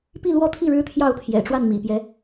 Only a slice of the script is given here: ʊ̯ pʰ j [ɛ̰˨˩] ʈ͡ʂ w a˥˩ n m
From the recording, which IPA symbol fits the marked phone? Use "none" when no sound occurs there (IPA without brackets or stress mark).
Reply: ɛ̰˨˩